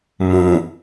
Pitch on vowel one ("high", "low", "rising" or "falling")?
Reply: low